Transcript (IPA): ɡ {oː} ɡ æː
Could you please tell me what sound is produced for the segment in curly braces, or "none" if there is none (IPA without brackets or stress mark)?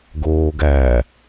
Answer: oː